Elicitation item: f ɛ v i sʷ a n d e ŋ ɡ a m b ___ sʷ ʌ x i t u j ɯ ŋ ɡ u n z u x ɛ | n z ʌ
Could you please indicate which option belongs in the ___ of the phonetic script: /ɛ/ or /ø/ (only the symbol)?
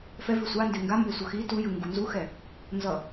ɛ